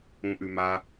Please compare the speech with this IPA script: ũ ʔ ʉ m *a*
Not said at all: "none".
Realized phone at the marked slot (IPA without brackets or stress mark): a